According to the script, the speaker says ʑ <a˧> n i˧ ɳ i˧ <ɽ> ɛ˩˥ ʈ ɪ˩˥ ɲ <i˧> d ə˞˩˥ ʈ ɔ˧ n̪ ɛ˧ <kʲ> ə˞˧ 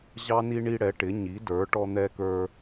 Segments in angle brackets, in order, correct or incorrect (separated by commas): incorrect, correct, incorrect, incorrect